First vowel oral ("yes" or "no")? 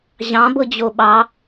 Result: no